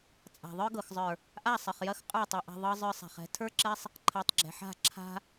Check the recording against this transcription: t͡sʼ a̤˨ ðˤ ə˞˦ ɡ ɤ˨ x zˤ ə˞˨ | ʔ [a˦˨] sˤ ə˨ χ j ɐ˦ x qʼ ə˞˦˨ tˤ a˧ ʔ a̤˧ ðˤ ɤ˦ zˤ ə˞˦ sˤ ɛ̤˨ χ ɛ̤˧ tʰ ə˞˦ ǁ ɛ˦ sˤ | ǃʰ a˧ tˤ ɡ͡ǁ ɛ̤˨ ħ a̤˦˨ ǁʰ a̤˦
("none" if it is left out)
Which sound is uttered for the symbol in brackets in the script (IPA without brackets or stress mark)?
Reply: a˦˨